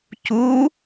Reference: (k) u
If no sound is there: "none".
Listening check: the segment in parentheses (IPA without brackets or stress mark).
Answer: c